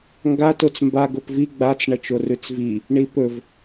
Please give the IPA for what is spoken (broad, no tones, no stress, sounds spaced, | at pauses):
ŋ ɡ a t o t͡s m b a ɡ o p v i ɡ͡b a t͡s ɳ ɐ t͡ʃ o r ʉ t͡s v i | ɳ i p ɵ v